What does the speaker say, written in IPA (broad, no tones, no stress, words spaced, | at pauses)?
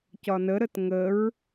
cɒnəɾət ŋəɹ